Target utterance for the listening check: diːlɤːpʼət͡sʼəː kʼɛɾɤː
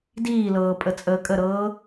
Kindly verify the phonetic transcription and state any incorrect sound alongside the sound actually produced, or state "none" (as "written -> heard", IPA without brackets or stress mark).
ɛ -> ə